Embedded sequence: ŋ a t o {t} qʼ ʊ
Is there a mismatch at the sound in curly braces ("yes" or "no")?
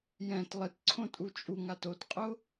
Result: no